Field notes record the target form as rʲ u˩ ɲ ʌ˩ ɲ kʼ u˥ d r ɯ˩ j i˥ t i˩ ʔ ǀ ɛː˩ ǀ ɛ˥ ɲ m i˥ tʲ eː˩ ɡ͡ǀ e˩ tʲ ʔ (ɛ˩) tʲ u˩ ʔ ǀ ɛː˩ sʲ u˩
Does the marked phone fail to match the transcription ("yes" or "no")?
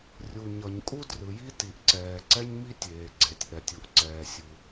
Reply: no